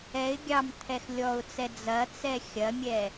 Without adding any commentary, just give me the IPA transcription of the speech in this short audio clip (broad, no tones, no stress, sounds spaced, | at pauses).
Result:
ɛ ɪ̯ ɡʲ ɑ m t̪ʰ ɛ x lʲ ɔ ʊ̯ t͡s ɛ d͡z ɐ t͡s ɛ xʲ ɐ mʲ ɛ